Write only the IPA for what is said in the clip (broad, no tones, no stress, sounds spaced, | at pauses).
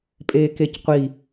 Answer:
pʼ eː k e c qʷ i